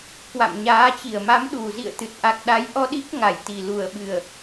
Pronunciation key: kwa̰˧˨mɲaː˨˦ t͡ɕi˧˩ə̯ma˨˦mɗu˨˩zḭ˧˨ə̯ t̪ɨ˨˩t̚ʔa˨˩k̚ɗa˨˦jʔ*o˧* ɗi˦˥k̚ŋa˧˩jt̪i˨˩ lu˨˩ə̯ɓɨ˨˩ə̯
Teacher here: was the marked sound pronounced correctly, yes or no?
no